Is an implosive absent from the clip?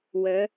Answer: yes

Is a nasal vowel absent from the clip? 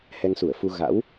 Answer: yes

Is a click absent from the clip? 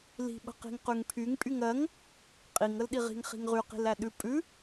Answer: yes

